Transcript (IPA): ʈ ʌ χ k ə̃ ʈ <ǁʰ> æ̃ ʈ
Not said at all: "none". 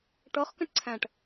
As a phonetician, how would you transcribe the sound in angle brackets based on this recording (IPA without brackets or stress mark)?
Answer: ǀʰ